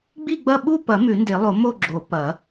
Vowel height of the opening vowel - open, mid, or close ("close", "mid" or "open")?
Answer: close